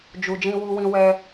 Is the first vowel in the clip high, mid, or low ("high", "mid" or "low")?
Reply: high